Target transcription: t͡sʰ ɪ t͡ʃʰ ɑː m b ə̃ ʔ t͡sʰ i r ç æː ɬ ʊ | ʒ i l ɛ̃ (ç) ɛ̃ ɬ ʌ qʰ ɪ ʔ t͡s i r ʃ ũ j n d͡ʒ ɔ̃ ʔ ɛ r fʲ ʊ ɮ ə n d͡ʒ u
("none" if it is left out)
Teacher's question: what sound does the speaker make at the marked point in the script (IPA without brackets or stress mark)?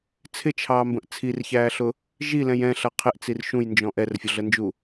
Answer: j